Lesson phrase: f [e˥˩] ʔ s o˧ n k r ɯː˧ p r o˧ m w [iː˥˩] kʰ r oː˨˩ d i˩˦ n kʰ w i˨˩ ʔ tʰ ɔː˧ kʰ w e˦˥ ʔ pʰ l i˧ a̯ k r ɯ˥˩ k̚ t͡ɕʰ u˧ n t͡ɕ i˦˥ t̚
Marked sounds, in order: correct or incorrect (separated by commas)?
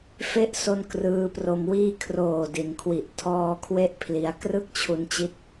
incorrect, correct